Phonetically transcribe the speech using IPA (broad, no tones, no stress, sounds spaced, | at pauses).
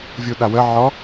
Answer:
vʲ u ɗ a w ə ʕ ɔ